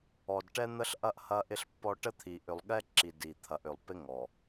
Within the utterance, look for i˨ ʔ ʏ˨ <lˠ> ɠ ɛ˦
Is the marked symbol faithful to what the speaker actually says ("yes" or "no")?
yes